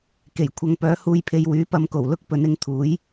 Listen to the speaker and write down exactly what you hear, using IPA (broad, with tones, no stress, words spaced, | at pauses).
ke˨˩jkʷʰɐ˧ŋ pœː˨˥huː˧jpʰe˧jwyː˨˥ pɐ˨˧mko˨˩wlʊ˥k̚ pɵ˨˧nɪ˨˧ŋt̪ʰuː˨˥j